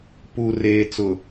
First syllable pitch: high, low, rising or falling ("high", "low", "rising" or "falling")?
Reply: low